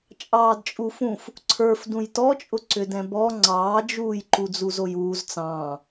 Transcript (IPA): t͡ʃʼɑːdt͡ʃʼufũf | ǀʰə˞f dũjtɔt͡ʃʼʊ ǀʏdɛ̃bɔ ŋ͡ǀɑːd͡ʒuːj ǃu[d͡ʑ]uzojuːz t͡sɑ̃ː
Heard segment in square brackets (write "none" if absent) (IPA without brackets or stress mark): d͡z